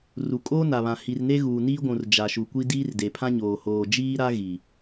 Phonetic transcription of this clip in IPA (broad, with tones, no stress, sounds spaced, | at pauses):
r u˨ kʼ oː˦ n a˨ β ã˨ h i˨ r n e˦ ɣ uː˨ n iː˦ ɡʷ ũ˨ r d͡ʒ a˨ ʃ u˨ kʷ i˦ d iː˦ r d e˨ pʰ ã˦ ɲ oː˨ h oː˨ d͡ʒ iː˦ ɾ a˦ ɣ i˨